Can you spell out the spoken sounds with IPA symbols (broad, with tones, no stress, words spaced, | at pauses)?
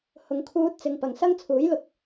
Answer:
hʊ˨ŋkʰuː˧t̚ t͡sɪ˨ŋ pɐ˨˩ŋsɐ˥ŋt͡sʰuː˨˥jlʊ˨˥k̚